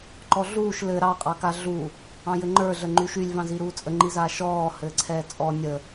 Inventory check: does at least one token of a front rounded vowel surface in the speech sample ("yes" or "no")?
yes